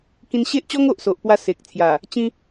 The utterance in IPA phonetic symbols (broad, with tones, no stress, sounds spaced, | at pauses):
k ĩ˧ n ɕ e˦ ʔ t͡ɕ ɔ˦ ŋ o˨ ʔ s o˨ ʔ p w a˧ s e˨ k̚ t͡sʰ j a˨˩ | t͡ɕ ĩ˧